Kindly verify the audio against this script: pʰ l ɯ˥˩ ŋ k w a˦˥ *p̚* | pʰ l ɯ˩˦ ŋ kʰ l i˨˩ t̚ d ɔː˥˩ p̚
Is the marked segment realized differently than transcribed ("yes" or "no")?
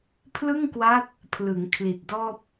yes